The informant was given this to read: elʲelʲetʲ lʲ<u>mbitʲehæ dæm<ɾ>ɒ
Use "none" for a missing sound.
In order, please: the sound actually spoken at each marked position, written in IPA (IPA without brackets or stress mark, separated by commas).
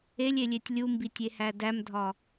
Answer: u, dʱ